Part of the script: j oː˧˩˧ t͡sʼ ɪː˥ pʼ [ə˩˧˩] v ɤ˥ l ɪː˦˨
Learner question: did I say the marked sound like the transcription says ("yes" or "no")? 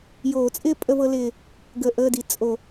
no